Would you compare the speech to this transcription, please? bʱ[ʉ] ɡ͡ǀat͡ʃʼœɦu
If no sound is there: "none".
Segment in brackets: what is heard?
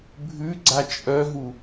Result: ʉ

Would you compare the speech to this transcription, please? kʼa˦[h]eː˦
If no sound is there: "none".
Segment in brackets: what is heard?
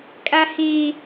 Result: h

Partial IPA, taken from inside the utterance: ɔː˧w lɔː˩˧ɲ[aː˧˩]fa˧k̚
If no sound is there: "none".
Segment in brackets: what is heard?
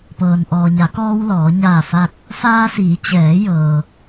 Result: aː˧˩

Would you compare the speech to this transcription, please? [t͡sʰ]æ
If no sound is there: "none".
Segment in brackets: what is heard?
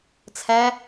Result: t͡sʰ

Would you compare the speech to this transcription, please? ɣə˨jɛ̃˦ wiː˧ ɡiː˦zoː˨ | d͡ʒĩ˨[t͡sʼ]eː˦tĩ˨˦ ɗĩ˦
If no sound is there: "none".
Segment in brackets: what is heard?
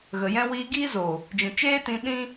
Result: t͡ʃ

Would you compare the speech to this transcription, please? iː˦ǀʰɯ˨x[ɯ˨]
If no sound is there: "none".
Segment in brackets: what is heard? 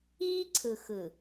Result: ɯ˨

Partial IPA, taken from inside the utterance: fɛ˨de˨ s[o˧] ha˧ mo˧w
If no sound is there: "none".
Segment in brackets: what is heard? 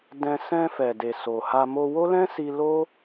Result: o˨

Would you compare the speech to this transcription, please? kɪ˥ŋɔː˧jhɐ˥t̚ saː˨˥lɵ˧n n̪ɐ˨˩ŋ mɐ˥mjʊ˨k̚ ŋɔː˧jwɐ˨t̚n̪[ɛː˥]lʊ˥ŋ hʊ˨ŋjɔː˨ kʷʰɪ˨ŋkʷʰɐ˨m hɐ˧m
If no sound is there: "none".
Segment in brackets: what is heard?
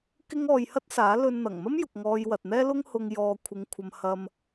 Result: ɛː˥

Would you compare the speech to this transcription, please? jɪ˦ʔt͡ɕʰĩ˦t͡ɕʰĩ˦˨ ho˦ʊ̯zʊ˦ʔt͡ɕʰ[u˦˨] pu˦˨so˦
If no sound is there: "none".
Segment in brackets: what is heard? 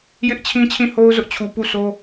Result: u˨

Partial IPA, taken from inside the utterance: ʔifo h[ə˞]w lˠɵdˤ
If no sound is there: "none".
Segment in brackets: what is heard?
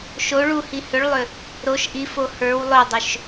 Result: ə˞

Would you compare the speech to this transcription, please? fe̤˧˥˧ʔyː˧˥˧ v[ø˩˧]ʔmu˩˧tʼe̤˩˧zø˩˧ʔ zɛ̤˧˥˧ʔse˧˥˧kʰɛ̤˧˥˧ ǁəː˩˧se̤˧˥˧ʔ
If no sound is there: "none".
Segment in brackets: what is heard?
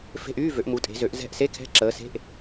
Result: ø˩˧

